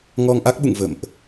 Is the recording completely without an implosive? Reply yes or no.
no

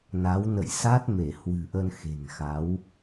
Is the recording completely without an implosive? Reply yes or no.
yes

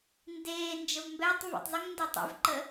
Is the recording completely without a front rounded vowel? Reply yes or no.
yes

